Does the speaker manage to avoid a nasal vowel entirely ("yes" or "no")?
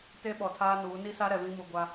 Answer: no